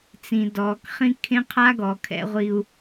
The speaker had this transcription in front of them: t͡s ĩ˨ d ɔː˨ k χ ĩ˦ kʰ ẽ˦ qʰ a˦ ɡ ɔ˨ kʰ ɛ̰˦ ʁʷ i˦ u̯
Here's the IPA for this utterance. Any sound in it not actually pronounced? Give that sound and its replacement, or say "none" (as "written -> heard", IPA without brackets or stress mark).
none